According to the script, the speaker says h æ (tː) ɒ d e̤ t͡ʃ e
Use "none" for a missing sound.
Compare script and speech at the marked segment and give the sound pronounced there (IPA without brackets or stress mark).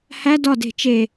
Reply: d